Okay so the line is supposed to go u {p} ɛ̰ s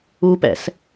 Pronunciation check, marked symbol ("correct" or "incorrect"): correct